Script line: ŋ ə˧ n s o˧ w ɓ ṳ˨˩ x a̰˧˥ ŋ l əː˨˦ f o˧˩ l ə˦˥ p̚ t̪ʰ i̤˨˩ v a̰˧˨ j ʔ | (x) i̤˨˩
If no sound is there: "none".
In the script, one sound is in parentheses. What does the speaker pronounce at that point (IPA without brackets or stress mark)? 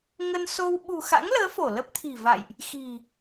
x